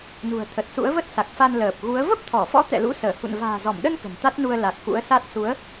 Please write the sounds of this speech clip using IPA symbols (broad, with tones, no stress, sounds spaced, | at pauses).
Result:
n ṳ˨˩ ə̯ t̪ʰ ə˨˩ t̚ s ṵ˧˥ ə̯ v ə˦˥ t̚ s a˨˩ k̚ f a˧ n l əː˨˩ p̚ ɣ u˨˦ ə̯ v ə˦˥ p̚ t̪ʰ ɔ˧˩ f ɔ̰˧˥ t̪ ɛ̰˧˨ l ṵ˧˥ s əː˧˩ h ṵ˧˨ n v a̤ː˨˩ z ɔ˧˩ m ɗ ə˧ n k ə̤˨˩ n t̪ a˦˥ t̚ n u˧ ə̯ l a˨˩ k̚ x ṵ˧˥ ə̯ s a˦˥ t̚ s u˨˦ ə̯